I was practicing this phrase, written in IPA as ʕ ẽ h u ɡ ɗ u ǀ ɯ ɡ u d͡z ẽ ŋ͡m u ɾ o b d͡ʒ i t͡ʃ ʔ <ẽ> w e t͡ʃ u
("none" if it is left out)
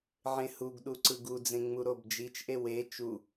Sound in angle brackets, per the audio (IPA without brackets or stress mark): e